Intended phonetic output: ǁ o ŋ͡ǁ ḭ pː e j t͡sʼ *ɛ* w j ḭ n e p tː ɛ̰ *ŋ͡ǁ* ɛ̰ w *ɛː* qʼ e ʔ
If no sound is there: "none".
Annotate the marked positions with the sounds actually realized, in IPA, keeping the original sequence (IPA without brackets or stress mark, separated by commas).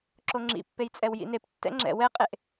ɛ, ŋ͡ǁ, ɛ